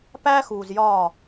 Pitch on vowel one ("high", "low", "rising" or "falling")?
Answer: high